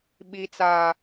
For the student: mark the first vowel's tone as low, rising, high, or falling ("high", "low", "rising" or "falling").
high